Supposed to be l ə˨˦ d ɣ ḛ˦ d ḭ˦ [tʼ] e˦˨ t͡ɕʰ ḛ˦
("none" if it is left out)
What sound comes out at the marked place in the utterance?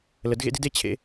d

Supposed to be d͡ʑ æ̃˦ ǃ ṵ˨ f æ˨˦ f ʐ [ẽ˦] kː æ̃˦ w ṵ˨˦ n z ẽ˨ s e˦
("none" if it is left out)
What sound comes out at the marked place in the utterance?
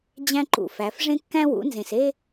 ẽ˦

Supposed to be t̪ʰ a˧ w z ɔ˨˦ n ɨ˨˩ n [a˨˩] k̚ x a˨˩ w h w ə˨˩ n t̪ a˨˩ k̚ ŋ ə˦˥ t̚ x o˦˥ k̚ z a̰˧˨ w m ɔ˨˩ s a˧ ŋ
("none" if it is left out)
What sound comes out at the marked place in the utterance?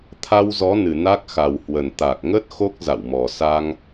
a˦˥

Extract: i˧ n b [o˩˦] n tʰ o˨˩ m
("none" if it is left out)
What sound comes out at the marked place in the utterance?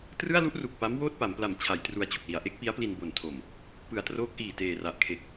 o˨˩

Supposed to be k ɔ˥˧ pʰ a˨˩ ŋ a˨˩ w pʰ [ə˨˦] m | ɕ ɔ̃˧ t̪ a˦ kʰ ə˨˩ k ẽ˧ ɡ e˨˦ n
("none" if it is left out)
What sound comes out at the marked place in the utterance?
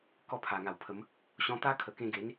ə˨˦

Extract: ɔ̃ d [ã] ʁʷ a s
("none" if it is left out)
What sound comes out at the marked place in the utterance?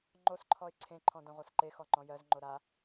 ã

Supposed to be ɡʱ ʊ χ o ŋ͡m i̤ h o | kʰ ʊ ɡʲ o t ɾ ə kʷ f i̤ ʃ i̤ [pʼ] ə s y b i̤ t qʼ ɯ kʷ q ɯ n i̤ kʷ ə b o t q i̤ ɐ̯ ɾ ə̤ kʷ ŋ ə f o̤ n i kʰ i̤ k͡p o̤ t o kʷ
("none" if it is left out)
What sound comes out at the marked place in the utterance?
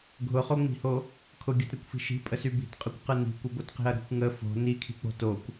pʼ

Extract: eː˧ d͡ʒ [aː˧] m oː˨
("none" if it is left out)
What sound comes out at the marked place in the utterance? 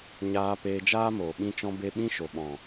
aː˦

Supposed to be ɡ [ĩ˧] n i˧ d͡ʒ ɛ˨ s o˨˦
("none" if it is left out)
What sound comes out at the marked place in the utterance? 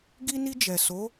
i˧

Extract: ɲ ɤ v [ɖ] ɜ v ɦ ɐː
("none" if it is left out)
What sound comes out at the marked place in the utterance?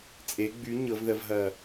ð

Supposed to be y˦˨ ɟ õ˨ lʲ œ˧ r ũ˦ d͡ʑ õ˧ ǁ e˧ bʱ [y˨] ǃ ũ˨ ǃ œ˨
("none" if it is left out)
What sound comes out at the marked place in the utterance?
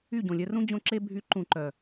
y˨˦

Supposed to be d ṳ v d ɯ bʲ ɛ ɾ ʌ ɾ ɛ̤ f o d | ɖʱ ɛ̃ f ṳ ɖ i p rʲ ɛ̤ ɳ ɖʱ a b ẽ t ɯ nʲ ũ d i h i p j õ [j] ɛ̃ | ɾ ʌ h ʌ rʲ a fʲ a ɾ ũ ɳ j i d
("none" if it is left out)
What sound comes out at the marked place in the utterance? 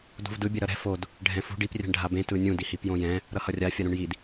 j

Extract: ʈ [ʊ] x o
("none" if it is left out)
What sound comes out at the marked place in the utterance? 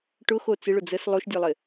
ʊ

